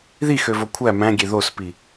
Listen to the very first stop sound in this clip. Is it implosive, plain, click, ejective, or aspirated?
aspirated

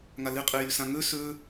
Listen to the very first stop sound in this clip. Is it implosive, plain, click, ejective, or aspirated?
ejective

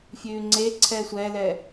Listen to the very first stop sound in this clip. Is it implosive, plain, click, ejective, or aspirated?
click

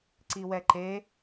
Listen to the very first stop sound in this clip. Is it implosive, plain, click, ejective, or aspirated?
click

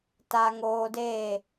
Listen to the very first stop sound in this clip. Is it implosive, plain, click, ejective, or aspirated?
plain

